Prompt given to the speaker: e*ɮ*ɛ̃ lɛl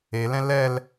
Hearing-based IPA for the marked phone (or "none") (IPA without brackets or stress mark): l